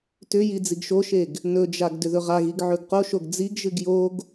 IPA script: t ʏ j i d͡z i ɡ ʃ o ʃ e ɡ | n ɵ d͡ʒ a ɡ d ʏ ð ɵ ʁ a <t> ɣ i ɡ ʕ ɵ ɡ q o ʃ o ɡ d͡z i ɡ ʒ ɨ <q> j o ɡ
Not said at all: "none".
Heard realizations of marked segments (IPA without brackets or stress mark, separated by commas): none, ɡ